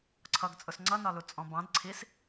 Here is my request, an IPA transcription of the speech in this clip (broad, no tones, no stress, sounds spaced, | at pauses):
ǀʰ ʌ ɡ t͡sʼ ʊ s ŋ͡ǀ ʌ n ɒ l u t͡sʼ ɔ̃ b ɑ̃ d ǀʰ i s